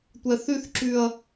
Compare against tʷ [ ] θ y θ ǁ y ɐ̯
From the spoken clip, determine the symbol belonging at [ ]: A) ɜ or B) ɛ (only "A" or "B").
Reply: B